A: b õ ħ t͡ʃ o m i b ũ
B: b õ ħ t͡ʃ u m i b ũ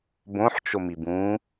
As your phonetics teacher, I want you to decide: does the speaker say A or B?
A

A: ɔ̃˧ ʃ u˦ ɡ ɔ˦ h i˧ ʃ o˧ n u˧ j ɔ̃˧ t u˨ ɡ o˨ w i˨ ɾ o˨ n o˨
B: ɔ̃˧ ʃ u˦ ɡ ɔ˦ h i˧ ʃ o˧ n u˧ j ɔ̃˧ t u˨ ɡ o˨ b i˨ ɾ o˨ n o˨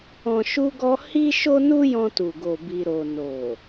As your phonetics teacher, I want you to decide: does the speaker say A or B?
B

